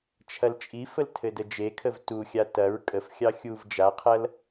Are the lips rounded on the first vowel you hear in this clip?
no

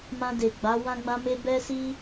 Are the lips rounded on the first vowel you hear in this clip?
no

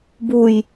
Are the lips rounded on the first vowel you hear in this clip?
yes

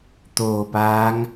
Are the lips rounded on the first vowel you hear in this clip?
yes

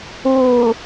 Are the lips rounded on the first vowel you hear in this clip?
yes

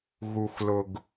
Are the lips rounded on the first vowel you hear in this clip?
yes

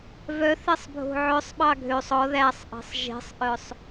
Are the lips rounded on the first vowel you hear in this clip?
yes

